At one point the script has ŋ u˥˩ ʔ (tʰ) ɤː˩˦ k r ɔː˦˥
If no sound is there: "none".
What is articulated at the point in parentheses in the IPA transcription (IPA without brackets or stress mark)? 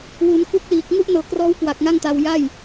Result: n